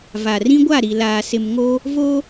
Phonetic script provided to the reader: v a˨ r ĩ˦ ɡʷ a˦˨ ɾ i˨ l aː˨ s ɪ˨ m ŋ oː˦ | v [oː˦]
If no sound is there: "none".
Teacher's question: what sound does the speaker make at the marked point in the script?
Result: oː˦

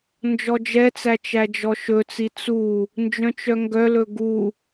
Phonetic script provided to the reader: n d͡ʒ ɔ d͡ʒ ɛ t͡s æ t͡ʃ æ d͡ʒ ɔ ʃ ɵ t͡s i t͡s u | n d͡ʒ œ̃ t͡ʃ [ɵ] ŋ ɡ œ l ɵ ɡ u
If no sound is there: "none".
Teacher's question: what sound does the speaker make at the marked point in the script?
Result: œ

